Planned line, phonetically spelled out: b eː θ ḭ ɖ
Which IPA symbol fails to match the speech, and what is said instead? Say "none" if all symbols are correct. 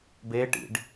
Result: θ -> ʈ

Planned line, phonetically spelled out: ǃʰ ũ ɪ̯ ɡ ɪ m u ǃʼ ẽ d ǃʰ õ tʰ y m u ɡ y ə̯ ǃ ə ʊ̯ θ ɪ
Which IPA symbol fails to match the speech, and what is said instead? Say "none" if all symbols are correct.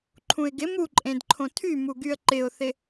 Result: ə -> ɪ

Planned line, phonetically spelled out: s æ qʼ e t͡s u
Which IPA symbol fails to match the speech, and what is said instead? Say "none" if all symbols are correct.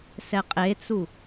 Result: æ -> ɛ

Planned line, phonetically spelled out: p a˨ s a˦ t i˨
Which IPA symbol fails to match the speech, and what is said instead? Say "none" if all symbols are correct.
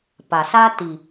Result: none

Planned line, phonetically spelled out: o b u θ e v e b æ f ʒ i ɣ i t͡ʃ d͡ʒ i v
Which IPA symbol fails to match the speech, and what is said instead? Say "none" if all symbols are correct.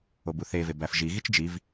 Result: none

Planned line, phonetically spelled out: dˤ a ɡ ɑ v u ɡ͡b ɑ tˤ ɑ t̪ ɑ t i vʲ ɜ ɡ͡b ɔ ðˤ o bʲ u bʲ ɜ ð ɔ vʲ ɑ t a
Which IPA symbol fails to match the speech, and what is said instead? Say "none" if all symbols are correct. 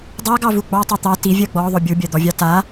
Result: ð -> d̪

